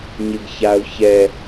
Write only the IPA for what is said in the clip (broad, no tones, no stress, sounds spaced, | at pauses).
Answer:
ɲ ɪ ɡ ç a ʊ̯ ç ɛ